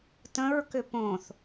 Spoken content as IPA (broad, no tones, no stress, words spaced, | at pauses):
tə̃ɹkʏ põθ